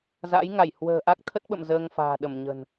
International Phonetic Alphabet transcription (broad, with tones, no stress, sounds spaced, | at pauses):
z a̰˧˥ j ŋ a˧˩ j h w ə̤ː˨˩ ʔ a˦˥ k̚ t̪ʰ ə˦˥ t̚ ɓ ə̰˧˨ m z əː˧ ŋ f a̤ː˨˩ ɗ ə˧˩ m ɲ ə̤˨˩ n